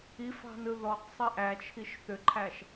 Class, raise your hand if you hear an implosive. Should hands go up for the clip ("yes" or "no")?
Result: no